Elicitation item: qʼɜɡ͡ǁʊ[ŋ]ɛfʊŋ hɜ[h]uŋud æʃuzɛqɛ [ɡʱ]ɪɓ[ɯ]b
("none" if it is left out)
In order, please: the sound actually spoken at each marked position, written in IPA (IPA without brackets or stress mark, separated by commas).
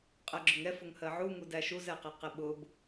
ŋ, ʕ, q, ʊ